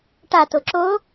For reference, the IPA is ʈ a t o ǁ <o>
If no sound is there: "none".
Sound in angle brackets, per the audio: o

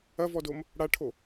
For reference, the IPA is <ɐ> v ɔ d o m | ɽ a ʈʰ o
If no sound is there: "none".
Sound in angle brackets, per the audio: ɐ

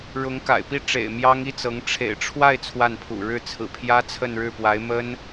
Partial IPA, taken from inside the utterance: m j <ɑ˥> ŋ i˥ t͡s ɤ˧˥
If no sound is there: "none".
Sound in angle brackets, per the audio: ɑ˥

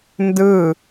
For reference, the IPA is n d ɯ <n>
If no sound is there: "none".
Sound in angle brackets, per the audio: none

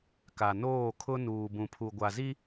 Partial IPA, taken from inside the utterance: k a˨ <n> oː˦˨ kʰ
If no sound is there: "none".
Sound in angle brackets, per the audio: n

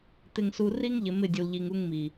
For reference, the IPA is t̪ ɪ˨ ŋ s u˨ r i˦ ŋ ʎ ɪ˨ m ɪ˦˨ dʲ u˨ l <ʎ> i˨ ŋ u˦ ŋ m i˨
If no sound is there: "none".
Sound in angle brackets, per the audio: ʎ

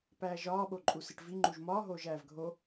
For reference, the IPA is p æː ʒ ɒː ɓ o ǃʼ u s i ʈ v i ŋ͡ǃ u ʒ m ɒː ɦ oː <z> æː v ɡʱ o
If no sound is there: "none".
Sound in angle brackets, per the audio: ʒ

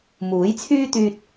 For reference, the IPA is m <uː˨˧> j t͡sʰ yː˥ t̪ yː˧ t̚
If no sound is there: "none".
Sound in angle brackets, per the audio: uː˨˥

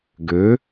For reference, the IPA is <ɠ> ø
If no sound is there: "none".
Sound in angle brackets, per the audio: ɡ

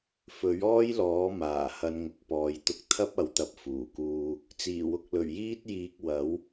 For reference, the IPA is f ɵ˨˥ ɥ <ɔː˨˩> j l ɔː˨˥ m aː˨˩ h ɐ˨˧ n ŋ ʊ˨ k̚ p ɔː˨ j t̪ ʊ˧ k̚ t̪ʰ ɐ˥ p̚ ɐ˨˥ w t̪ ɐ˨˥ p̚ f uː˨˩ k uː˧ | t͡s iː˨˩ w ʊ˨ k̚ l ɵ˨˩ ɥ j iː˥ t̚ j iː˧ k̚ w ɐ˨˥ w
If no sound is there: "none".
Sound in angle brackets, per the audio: ɔː˥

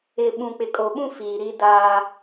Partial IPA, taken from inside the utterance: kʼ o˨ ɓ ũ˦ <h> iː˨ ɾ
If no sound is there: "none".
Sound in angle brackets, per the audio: f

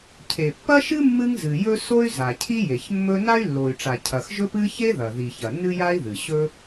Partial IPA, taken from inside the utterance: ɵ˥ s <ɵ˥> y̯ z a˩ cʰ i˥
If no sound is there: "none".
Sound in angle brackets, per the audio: o˥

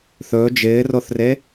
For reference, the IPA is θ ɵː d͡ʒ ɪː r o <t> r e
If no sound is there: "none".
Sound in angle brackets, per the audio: θ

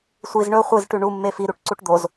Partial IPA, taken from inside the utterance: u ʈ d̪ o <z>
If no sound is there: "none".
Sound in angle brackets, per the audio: z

